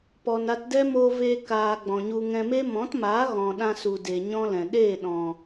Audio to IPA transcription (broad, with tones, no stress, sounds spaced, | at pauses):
p ɔ˨ n a˧ t d ɛ˦ m oː˧ v eː˧ k aː˨ ɡ͡b ɔ̃˨ ɲ u˧ ŋ ɛ̃˧ m e˦ m ɔ̃˨˦ t m aː˨˦ ɣ ɔ̃˨ ɗ ã˧ s u˨ d e˨ ɲ ɔ̃˦ l ɛ̃˨ ɗ eː˦˨ ɗ ɔ̃˨